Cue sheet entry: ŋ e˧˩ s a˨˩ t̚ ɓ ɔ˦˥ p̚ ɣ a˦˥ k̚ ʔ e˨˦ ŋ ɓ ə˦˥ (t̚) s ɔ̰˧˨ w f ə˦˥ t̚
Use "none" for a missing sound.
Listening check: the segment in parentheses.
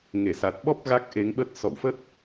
t̚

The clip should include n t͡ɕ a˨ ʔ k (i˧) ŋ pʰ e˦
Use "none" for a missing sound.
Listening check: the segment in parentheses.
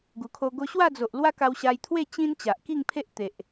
i˥˧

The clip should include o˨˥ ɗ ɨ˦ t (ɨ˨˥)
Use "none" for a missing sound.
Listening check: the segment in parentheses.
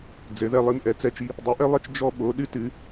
ɨ˨˥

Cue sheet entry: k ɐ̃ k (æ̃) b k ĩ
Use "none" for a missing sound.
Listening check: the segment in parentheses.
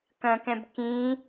ɛ̃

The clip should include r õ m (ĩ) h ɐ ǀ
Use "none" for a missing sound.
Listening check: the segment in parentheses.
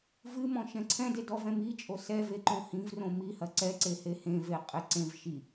i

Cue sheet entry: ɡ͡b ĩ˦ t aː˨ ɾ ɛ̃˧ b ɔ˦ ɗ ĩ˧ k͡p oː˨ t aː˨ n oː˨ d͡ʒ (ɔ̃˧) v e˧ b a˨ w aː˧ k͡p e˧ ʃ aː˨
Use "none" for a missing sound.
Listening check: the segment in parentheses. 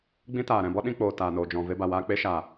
ɔ̃˨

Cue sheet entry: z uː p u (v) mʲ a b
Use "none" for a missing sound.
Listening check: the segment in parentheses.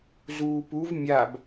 v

